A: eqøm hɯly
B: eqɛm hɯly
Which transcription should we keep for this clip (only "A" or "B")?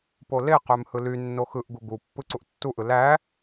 A